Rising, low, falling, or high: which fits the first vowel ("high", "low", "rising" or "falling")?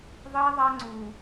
high